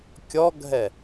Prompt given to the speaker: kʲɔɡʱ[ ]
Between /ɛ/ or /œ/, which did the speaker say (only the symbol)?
ɛ